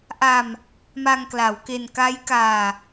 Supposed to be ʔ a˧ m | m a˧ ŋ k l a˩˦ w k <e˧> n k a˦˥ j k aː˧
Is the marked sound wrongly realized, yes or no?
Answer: no